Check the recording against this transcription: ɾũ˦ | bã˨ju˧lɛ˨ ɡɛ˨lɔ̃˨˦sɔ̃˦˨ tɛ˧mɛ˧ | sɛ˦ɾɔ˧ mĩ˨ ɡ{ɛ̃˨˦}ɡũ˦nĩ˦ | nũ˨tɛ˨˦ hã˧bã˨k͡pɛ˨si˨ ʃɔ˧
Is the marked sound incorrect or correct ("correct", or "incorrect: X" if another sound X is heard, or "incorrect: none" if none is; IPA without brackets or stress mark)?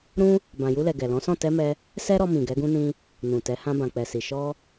incorrect: ɛ˨˦